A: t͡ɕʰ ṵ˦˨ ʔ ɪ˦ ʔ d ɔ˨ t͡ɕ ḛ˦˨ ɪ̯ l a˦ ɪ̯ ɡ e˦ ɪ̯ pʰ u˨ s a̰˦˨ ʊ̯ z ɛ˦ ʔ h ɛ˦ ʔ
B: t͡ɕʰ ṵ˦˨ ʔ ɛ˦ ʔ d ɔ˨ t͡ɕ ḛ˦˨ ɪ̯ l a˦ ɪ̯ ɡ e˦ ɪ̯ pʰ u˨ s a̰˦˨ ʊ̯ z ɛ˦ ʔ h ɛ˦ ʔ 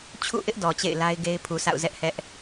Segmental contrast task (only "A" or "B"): A